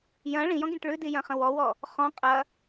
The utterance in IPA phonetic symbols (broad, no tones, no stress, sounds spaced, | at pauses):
j ɐ̃ ɭ ĩ j ɔ̃ ɡ ĩ ʈ ɭ ʉ d i j ɐ̃ χ ə̃ w ɔ w ɔ | χ ɔ̃ qʼ ɐ